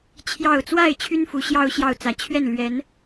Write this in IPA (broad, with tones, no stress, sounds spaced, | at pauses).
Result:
t͡ɕʰ j ɑ˥˨ ʊ̯ t͡s w a˥˨ ɪ̯ t͡ɕʰ y˦ n f u˨˦ ɕ j ɑ˦ ʊ̯ ɕ j ɑ˥˨ ʊ̯ t͡s ä˨˦ t͡ɕʰ ɥ ɛ˥˨ n l ɥ ɛ˨˦ n